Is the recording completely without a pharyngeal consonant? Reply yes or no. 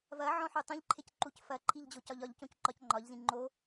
no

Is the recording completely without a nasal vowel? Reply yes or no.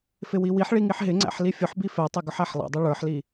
yes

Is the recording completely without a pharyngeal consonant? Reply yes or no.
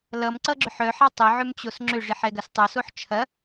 no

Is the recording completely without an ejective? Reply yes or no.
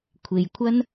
yes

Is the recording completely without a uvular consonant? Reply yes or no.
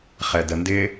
no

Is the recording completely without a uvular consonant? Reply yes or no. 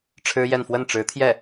yes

